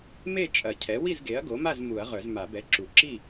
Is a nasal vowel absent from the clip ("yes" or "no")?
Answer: yes